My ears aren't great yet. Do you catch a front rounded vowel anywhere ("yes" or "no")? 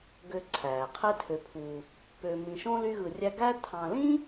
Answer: yes